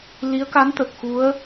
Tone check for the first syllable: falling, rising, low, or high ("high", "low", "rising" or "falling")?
rising